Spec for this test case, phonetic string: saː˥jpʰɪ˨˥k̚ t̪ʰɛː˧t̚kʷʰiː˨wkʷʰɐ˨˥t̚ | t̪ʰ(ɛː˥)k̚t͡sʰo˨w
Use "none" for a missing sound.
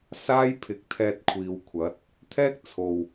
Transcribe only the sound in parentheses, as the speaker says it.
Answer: ɛː˥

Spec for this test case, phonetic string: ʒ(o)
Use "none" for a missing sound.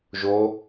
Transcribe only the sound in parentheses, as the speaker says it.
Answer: o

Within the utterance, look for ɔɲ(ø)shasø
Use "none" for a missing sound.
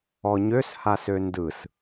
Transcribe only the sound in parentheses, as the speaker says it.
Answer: ø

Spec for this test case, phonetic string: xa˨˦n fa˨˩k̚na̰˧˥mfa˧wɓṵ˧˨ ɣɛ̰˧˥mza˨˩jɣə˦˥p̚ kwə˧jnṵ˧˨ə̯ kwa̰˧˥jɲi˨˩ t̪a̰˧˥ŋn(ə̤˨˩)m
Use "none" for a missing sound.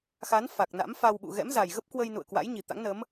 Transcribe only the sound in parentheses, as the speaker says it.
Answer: ə˨˦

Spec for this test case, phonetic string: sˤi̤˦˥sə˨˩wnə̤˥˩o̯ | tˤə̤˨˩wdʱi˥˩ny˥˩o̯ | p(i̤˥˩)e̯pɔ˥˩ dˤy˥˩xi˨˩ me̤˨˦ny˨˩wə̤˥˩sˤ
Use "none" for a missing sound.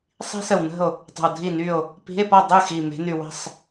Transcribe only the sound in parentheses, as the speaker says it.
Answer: i̤˧˥˧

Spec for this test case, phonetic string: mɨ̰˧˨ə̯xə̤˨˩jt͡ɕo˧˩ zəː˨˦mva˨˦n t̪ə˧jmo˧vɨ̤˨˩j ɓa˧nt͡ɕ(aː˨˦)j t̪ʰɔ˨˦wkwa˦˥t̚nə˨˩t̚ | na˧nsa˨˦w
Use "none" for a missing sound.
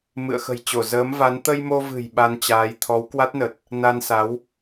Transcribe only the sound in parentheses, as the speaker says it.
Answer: aː˨˦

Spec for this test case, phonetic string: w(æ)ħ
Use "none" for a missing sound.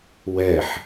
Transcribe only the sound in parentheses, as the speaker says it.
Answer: ɛ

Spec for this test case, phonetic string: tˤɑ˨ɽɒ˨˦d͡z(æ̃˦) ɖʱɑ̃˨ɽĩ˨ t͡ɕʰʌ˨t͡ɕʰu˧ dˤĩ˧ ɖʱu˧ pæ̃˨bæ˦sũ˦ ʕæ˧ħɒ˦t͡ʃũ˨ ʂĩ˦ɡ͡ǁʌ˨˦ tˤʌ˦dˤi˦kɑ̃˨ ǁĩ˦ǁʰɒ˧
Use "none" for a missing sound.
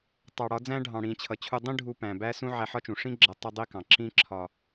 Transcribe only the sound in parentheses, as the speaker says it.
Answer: æ̃˦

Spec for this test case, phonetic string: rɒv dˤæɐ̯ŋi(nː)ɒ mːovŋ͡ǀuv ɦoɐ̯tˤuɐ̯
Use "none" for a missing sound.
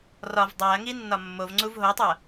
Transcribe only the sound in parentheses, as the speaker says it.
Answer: nː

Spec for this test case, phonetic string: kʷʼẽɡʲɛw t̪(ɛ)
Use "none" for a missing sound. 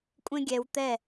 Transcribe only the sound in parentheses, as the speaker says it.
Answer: ɛ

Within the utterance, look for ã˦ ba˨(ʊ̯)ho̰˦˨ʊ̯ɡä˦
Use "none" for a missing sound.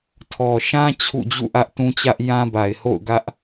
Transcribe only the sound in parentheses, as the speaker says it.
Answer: ɪ̯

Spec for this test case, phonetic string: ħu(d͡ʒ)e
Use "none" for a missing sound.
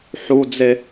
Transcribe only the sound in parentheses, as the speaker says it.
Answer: d͡z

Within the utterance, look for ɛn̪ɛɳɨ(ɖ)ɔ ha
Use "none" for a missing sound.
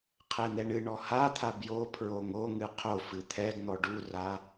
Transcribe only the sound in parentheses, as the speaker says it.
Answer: ɳ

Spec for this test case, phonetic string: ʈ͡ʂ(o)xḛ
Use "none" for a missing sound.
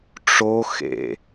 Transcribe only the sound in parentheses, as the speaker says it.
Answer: o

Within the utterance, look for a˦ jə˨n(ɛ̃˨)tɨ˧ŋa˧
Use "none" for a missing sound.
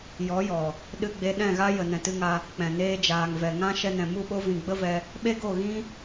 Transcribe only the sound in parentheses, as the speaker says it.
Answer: ɛ̃˨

